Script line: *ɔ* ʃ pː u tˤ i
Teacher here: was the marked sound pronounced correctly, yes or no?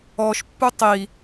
yes